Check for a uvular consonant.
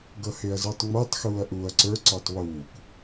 absent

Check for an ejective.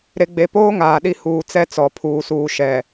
absent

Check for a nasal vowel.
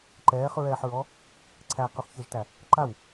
absent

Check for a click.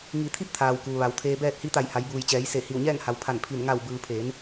absent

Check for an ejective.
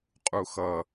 present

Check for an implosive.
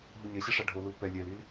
absent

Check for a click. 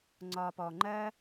present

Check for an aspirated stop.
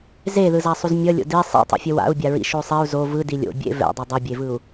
absent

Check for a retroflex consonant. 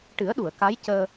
present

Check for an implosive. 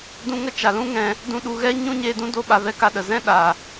present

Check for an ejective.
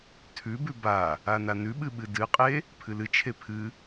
present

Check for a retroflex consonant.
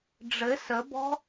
present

